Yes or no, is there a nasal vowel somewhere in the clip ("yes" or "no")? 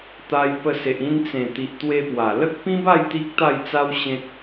yes